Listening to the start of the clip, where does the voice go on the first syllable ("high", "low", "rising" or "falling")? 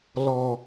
low